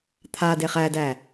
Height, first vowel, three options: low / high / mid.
low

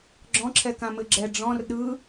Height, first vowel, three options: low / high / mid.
mid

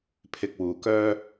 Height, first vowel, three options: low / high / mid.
high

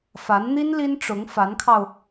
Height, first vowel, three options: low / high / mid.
low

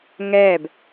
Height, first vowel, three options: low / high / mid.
mid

